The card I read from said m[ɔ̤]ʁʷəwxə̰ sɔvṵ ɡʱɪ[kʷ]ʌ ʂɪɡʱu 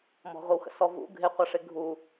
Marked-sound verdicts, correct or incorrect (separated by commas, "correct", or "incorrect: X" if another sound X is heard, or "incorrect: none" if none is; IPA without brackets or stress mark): correct, incorrect: qʷ